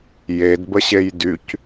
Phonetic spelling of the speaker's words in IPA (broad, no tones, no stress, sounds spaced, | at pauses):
j e d b ə ɕ e j d y c